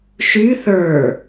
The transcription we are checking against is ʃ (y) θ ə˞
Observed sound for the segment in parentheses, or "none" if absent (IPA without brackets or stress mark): y